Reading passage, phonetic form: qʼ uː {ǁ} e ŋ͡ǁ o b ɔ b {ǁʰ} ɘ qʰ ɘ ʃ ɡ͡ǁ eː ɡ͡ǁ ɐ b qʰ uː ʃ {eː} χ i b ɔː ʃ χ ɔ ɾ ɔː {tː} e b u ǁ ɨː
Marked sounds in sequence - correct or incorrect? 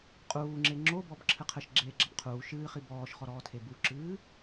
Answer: incorrect: ŋ͡ǁ, correct, incorrect: ɨː, incorrect: tʰ

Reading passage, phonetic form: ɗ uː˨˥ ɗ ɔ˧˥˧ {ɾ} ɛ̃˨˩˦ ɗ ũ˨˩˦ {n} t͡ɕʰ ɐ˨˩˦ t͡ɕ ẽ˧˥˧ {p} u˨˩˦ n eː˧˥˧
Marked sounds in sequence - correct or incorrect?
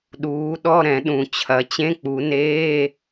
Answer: correct, incorrect: none, incorrect: k͡p

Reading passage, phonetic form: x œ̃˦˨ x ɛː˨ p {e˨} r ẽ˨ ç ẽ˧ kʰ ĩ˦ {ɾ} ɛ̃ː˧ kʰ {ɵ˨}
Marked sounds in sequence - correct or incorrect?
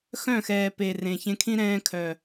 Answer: correct, correct, incorrect: œ˨

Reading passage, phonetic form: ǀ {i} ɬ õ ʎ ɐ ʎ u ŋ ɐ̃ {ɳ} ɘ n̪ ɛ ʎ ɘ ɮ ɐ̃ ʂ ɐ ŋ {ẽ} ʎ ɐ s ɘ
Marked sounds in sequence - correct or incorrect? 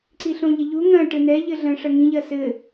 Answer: correct, incorrect: ʈ, incorrect: ĩ

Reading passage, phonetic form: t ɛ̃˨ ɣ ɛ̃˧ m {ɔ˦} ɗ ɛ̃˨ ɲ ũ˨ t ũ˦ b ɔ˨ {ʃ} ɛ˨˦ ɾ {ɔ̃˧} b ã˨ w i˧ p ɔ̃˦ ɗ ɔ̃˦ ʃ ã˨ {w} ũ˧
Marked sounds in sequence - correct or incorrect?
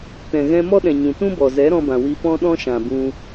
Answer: correct, incorrect: z, correct, incorrect: b

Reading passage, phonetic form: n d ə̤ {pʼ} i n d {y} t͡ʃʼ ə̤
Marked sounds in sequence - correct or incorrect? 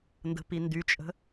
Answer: incorrect: p, correct

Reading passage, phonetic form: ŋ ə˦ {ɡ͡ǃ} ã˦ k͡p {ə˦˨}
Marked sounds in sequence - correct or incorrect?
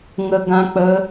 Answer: incorrect: ɡ, incorrect: ə˦

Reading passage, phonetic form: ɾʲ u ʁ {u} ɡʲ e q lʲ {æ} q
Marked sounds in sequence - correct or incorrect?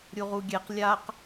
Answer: correct, incorrect: a

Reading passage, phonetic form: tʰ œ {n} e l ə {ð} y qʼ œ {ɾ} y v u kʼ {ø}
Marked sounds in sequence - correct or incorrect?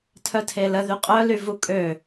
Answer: incorrect: tʰ, correct, incorrect: l, correct

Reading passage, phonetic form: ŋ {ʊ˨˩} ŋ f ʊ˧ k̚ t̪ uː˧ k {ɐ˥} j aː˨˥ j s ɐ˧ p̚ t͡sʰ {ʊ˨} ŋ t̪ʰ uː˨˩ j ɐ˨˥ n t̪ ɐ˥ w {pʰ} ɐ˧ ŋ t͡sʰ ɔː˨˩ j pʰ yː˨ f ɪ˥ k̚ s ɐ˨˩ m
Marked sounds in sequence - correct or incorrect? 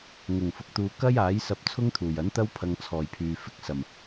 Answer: correct, correct, incorrect: ʊ˥, correct

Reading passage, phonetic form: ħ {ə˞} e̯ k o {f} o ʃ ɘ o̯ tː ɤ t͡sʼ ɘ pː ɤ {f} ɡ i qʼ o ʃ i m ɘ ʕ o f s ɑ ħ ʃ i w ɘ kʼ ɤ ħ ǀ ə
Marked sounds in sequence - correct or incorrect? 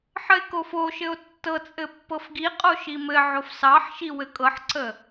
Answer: incorrect: ə, correct, correct

